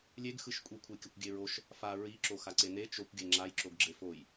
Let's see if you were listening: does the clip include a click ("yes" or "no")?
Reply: yes